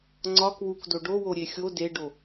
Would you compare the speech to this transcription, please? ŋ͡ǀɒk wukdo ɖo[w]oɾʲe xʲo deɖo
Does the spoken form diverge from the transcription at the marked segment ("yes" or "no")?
no